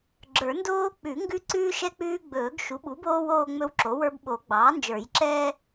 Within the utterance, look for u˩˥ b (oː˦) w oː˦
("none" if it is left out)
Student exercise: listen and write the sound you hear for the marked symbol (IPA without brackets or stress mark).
oː˦